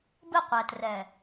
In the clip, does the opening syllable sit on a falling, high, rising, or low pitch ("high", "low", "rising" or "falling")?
falling